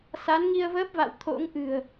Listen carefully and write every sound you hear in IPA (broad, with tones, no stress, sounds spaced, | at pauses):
s a˨˦ n ŋ i˧ ə̯ v əː˦˥ p̚ v a̰˧˨ w t̪ʰ o̰˧˥ ŋ ʔ ɨ̤˨˩ ə̯